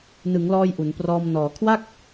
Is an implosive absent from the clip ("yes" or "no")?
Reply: yes